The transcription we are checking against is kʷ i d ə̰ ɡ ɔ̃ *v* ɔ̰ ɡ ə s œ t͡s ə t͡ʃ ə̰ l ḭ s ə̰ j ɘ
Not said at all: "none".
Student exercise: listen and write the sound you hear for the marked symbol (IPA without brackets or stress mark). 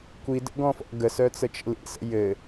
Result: f